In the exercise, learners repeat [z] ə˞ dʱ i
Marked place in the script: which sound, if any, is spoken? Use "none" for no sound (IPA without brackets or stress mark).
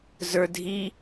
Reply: z